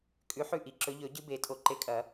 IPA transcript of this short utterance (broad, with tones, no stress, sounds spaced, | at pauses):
kʼ ʉ˨˥ ħ ʉ˥˨ ʔ i˨ ǁ ɵ˨˥ ʎ ɵ˨˩˦ ɟ ɨ˦ b e˨˩˦ tʼ o˨ ǃ e˨˥ kʼ ɐ˨˩˦